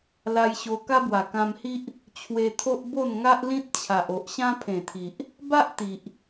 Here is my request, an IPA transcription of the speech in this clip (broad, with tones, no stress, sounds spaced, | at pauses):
l a˧ j ɕ o˧ k a˦ b w a˨˩ k ã˧ m h i˦ ʔ | t͡ɕʰ w e˧ t̪ʰ o˦ ʔ b o˥˧ n ŋ a˦ ʔ l ĩ˦ t̚ t͡ɕʰ a˨ ʔ o˨ ʔ ɕ ã˦ pʰ ẽ˨˩ t̪ʰ i˨ ʔ | b a˦ ʔ t̪ i˨ ʔ